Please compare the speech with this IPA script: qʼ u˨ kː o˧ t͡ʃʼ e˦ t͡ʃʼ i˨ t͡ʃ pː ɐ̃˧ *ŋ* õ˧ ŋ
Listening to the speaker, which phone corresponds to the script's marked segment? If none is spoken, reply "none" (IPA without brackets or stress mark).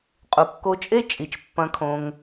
kʰ